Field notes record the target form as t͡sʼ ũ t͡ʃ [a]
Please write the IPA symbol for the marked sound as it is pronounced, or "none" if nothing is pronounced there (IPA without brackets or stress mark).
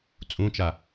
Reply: a